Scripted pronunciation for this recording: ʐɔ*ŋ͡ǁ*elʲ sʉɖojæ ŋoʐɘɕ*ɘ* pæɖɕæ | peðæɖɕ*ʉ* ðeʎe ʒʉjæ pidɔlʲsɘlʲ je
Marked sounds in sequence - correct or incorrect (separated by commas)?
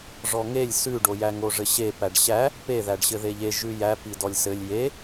incorrect, incorrect, incorrect